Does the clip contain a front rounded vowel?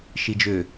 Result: yes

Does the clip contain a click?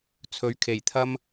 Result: no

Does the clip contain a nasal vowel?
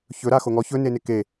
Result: no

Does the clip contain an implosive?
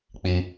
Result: no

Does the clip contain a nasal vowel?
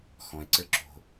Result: yes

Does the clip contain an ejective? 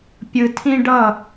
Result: no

